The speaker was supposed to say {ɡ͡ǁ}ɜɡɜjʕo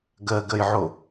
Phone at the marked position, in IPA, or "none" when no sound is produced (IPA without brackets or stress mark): ɡ